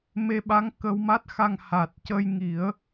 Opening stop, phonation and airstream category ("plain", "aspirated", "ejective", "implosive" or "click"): implosive